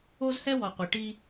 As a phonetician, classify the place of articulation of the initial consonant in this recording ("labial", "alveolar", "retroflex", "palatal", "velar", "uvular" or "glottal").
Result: alveolar